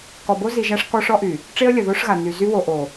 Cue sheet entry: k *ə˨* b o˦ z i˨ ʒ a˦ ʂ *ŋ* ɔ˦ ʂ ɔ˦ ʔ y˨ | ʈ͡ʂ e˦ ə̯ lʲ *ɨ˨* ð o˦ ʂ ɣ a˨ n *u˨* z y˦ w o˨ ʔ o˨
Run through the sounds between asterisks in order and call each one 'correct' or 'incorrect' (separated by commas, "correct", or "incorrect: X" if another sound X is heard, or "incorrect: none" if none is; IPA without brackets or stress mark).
incorrect: ɔ˨, incorrect: k, incorrect: ə˨, incorrect: y˨